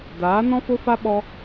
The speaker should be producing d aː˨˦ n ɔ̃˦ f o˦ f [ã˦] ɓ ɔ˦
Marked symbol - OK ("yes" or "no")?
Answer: no